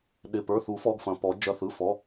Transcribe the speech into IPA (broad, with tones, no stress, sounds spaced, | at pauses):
ɗ ɪ˩˧˩ p ə˞˩˧˩ θ u˨˩˦ f ɔ˩˧˩ ɡ f ɐ̃˩˧˩ p ɔ˨˩˦ d͡ʒ ɐ˩˧˩ θ ɯ˩˧˩ f ɔ˩˧˩